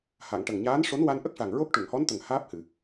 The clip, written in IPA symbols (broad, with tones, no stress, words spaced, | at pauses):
ha˨˩˨ŋʈə˨˩ŋɲaː˧˥nʂo˧˥n wa˧nʔə˦˥k̚ʂa˨˩ŋ ɹo˦˥k̚ʈu˨˩˨ŋhɔ˧˥nt̪ə˨˩ŋ haː˦˥p̚hɨ˨˩˨